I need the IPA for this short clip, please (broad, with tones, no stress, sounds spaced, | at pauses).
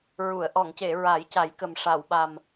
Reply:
ɹ u˨˩˨ ə̯ ʔ ɔ˨˩˨ ŋ c e˨˩˨ ɹ a˨˩˦ j c a˨˩˦ j k ə˨˩ m ʂ a˨˩˨ w ɓ a˨˩ m